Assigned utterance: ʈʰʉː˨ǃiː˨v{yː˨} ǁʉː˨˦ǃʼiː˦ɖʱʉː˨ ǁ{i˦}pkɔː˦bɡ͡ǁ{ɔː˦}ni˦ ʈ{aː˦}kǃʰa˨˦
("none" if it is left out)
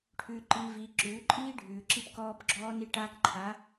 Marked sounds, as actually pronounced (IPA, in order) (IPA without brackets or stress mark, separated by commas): iː˨, i˦, ɔː˦, aː˦